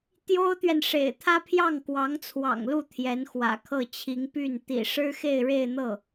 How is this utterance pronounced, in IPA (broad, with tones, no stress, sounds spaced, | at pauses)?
t̪ j o˥ ʊ̯ t̪ ɥ ɛ˨ n ʂ ḛ˨˩ ɪ̯ t̪ʰ ä˥ pʰ j ɑ˥˩ ŋ k w ɑ˧˥ ŋ t͡sʰ w ɑ̰˨˩ ŋ l u˥˩ t̪ʰ j ɛ˧˥ n x w ä̰˨˩ kʰ ɤ˥˩ t͡ɕʰ i˧˥ ŋ p y˥˩ n t̪ ḭ˨˩ ʂ ɻ̩˥ x e˥˧ ɪ̯ ɻ e˥˧ ɪ̯ n̪ ɤ˥˩